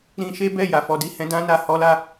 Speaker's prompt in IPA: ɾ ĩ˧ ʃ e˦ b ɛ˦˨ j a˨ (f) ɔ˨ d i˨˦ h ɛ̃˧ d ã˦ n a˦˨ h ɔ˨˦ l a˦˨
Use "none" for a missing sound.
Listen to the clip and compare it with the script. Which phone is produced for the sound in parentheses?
f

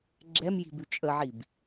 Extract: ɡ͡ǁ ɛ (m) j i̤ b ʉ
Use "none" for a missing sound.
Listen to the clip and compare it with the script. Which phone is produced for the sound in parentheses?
m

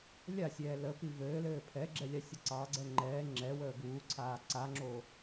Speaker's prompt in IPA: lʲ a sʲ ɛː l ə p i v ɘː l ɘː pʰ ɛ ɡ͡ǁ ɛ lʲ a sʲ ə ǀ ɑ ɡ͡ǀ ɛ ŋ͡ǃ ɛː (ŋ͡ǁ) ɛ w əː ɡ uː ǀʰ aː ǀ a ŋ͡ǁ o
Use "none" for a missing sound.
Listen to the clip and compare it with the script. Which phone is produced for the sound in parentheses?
ŋ͡ǁ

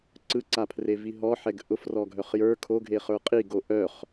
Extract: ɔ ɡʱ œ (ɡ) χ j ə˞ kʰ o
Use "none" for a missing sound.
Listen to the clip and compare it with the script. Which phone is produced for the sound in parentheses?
none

